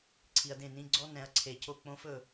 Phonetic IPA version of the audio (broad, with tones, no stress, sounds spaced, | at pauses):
ǀʰ i˨ ɐ̯ d ẽ˦˨ n ĩ˦ ɡ͡ǀ ɔ˦ n ɛ̃˨˦ ɐ̯ ǀʰ e˨ c o˦˨ k͡p õ˦ f ɵ˦˨